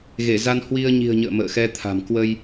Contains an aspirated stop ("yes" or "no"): yes